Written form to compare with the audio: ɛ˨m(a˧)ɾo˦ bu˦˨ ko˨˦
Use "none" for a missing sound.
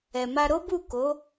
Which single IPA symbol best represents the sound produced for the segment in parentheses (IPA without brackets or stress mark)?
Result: a˧